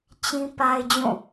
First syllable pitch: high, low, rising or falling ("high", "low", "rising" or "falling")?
high